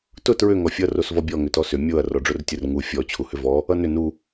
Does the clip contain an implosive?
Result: no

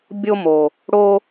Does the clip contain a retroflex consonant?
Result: yes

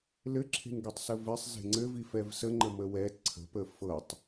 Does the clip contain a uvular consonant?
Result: no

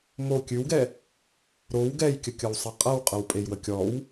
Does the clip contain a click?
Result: no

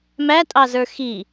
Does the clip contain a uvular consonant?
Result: no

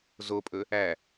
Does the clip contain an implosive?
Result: no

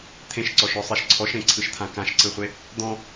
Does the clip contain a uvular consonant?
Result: yes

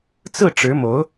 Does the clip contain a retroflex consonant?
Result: yes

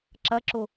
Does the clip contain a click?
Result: yes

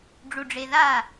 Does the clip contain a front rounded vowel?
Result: no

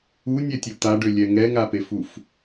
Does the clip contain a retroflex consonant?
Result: yes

